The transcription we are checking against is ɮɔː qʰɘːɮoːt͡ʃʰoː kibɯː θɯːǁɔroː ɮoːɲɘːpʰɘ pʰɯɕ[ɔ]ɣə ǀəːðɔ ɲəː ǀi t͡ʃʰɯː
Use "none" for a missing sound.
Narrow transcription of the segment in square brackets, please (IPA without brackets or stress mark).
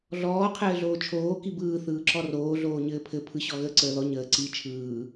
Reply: ɔ